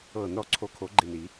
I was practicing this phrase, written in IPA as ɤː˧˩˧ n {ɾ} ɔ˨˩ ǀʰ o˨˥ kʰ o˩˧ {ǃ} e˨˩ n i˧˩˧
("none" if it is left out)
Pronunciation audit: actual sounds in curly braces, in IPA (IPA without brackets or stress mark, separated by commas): ɾ, ɡ͡ǃ